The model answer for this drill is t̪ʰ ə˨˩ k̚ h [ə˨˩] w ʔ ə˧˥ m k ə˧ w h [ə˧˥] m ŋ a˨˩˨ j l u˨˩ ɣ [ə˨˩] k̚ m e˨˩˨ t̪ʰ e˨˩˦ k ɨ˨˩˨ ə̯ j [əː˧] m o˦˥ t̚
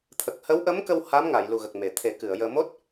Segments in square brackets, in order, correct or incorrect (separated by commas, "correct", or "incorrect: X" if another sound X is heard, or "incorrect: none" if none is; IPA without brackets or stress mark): incorrect: ə˧˥, incorrect: a˧˥, correct, correct